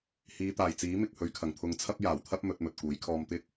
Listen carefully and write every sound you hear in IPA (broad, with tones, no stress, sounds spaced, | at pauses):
h iː˨˧ t̪ aː˨˩ j t͡s iː˨˥ m ɪ˨ k̚ h ɵ˨˧ ɥ kʰ ɐ˨˩ ŋ t̪ʰ ʊ˨ ŋ t͡sʰ ɐ˥ p̚ j aː˨˩ w t̪ʰ ɐ˥ p̚ m ɵ˨˥ t̚ m ɵ˨ t̚ k uː˨˥ j kʰ ɔː˧ m t̪ ɪ˥ k̚